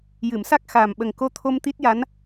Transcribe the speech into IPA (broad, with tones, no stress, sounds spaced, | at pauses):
j ɨ˨˩˨ m s a˦˥ k̚ x aː˨˩ m ɓ ə˨˩ ŋ k o˧˥ t̪ʰ o˧ m t̪ i˦˥ t̚ j a˧˥ n